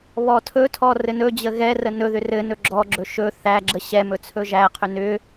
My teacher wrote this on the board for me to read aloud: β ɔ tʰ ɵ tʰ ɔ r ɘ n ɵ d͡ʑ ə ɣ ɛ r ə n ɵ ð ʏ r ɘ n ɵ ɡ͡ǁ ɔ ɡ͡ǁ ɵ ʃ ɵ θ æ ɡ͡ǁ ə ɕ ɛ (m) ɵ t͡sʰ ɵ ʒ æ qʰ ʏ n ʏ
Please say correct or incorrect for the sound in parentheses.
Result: correct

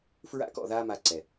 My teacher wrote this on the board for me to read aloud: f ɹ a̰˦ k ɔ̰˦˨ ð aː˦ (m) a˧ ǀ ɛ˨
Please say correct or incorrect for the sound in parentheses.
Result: correct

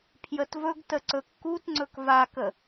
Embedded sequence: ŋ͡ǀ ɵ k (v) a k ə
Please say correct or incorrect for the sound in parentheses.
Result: correct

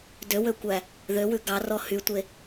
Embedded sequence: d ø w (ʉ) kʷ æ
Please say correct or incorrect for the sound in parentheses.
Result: incorrect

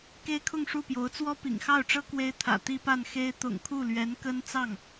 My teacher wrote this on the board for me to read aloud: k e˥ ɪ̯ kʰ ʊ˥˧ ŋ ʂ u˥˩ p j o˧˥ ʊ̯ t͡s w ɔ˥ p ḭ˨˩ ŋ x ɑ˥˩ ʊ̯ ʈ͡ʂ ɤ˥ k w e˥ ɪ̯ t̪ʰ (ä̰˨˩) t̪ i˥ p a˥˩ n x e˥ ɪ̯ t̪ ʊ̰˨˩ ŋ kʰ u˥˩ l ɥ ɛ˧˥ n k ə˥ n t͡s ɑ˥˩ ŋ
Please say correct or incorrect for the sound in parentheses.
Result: correct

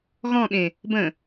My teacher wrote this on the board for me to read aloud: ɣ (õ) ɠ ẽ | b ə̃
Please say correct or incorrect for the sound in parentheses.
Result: incorrect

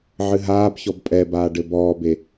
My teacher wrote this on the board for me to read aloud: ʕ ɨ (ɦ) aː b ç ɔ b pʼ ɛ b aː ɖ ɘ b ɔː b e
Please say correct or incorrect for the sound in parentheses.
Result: correct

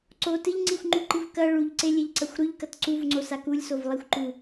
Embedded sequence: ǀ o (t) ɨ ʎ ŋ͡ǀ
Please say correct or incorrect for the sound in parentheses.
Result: correct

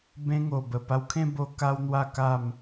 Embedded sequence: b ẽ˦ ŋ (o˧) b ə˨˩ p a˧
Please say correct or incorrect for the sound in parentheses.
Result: incorrect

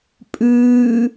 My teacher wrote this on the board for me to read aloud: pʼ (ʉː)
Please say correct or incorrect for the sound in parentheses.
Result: correct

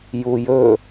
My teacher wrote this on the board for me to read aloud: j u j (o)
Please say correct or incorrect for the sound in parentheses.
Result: incorrect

